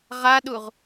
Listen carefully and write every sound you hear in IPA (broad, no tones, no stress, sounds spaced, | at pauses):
ʁ a ɗ u ʁ